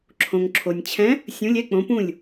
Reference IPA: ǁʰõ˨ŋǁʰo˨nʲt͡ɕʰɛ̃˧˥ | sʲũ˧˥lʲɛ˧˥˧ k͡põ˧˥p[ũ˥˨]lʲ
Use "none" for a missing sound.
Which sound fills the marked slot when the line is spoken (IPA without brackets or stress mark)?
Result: ũ˥˨